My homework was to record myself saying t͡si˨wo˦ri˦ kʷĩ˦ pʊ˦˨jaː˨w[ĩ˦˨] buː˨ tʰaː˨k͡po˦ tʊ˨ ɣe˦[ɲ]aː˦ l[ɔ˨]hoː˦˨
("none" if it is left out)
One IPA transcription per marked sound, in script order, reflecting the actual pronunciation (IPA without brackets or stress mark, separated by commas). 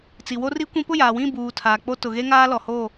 ĩ˦˨, ŋ, ɔ˨